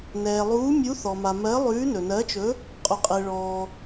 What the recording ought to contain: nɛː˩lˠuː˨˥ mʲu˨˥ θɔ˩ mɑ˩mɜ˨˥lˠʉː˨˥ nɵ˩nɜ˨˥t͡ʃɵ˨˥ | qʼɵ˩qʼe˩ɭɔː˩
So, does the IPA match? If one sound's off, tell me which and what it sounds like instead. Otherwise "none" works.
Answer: ɑ˩ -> a˩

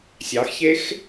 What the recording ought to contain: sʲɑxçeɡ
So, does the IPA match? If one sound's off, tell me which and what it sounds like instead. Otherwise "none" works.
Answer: ɡ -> x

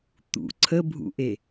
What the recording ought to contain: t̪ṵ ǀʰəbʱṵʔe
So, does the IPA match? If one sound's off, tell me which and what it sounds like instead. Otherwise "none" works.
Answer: none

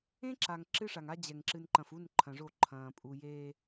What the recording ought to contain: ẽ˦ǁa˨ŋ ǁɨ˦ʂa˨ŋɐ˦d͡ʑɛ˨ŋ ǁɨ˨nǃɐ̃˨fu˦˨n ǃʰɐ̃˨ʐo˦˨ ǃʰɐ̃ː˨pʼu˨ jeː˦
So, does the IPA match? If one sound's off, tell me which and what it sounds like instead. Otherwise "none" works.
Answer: ɐ˦ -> a˦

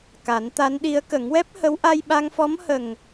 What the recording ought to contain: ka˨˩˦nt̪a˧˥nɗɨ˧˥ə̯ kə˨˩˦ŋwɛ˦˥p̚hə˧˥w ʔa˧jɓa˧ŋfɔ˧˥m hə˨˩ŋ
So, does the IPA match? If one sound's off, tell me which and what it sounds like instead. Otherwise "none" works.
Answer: ɨ˧˥ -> i˧˥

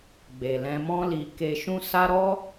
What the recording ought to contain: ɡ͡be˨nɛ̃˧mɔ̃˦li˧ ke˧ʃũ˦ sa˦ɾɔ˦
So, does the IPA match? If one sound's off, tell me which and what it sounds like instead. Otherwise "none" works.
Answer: n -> l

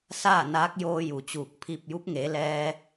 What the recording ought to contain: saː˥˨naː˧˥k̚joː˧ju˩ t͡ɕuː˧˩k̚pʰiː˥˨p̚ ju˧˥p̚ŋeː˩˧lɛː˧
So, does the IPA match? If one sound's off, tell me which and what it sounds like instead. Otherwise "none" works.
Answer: none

